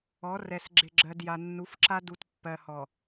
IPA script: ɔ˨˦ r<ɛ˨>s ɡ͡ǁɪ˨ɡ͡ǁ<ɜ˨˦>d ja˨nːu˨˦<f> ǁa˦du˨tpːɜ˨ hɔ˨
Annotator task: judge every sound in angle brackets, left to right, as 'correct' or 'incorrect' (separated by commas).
correct, incorrect, correct